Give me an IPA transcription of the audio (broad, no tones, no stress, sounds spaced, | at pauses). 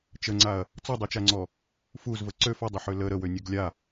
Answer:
t͡ʃ ə ŋ͡ǀ a ɐ̯ | t͡s ɔ dˤ u t͡ʃ a ŋ͡ǀ ɔ | f u z v ə ǀ ø f ɔ dˤ ə ħ ø l ə ɾ ə w ø nʲ ø ɡ lʲ a